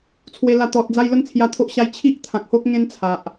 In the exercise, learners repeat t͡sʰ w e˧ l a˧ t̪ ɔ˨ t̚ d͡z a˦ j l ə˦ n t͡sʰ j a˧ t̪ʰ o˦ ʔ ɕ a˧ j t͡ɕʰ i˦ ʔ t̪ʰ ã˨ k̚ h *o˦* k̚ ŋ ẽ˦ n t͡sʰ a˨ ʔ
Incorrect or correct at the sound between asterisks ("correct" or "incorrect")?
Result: correct